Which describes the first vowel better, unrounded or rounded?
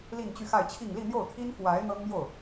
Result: unrounded